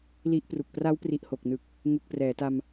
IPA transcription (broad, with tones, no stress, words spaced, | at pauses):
li˦˥ʔpru˨˩k̚ pra˦˥wpri˨˩ʔho˨˩k̚nɯ˨˩k̚ | ŋu˨˩k̚prɛː˩˦ta˧m